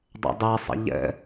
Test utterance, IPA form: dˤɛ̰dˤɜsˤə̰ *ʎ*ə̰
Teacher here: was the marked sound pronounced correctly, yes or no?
yes